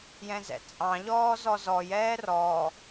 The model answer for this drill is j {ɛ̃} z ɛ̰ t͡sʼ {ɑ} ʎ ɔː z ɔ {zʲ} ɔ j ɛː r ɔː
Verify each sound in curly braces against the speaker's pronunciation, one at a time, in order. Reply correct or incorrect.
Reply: correct, incorrect: ɑ̃, incorrect: z

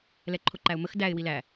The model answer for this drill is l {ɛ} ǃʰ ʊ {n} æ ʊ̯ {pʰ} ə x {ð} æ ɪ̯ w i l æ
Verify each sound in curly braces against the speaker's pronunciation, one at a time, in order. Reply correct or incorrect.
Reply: correct, incorrect: ǃ, incorrect: m, incorrect: d

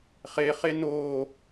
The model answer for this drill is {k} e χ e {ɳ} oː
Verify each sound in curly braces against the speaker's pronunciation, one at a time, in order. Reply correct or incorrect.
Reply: incorrect: χ, incorrect: n

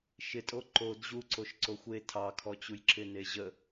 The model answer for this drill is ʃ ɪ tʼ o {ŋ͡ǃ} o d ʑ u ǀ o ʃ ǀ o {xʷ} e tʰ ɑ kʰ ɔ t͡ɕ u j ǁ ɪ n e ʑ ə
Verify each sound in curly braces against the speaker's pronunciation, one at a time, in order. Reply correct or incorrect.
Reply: incorrect: ǃ, correct

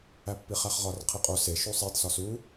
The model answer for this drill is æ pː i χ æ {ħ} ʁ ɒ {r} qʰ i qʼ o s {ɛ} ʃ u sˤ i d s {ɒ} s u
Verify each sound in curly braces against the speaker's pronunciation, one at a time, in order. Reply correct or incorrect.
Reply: incorrect: χ, correct, incorrect: e, correct

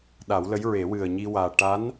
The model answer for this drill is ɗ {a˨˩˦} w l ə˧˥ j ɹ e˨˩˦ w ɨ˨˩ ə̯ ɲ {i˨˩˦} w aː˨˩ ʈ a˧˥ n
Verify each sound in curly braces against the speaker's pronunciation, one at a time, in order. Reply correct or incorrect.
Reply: correct, incorrect: i˧

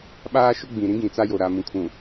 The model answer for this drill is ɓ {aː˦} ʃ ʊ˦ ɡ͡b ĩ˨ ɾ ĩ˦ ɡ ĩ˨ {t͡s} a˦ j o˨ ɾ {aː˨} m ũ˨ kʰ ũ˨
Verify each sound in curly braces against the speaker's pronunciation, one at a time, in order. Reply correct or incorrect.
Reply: correct, correct, incorrect: a˨

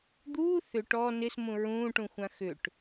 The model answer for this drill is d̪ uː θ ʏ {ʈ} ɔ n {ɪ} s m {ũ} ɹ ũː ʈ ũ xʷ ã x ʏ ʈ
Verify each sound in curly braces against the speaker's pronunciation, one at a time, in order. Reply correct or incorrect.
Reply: correct, correct, correct

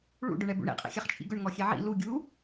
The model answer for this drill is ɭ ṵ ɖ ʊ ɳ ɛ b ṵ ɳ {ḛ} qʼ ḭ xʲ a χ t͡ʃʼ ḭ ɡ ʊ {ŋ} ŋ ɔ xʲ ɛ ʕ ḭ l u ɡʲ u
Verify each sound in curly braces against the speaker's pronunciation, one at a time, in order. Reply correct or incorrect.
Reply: incorrect: ḭ, incorrect: ɳ

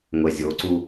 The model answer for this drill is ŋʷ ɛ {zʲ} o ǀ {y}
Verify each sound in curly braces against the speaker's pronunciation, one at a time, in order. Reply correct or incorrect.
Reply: correct, incorrect: u

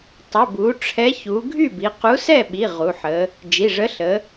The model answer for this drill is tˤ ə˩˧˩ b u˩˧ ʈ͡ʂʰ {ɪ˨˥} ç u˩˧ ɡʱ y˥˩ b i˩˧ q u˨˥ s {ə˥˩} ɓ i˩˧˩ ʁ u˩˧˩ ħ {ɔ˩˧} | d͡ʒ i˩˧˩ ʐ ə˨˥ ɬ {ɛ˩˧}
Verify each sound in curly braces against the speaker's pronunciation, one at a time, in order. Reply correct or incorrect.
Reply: incorrect: ɛ˨˥, incorrect: ɛ˥˩, incorrect: ə˩˧, incorrect: ə˩˧

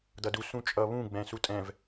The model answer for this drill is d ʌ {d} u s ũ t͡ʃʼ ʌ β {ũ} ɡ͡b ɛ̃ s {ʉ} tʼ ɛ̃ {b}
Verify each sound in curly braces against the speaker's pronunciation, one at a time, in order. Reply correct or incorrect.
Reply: correct, correct, incorrect: u, incorrect: v

